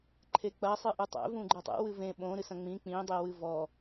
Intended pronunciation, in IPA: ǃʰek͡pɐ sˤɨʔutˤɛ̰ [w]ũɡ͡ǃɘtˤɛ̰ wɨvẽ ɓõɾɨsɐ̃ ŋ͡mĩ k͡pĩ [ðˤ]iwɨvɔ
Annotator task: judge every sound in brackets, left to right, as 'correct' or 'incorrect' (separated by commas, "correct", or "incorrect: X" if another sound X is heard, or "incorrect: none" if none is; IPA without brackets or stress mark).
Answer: incorrect: v, incorrect: dˤ